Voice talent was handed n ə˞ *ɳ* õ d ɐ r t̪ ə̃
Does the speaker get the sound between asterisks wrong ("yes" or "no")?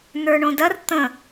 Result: no